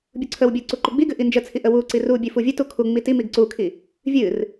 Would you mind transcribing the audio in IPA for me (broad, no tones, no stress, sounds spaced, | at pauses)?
bʲ u ǀʰ ə w bʲ ə ʊ̯ ǀ u ǃ u ɡ͡b i ɡ ɨ ʔ i n d͡ʒ ə t͡sʰ i ʔ ə w u ǀ i r u bʲ ɨ f u vʲ ɨ t u kʰ u ŋ͡m i t i m i ɡ ǀ u kʰ i | vʲ ɨ r